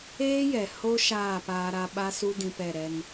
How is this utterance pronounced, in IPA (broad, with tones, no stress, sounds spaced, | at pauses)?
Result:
eː˦ j ɛ˨ h o˦ ʃ aː˦˨ p aː˦ ɾ a˦ ɓ a˦ s u˦ d ĩ˦ p ɛ˦˨ ɾ ɛ˦ n